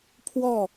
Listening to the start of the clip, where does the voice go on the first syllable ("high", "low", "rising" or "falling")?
falling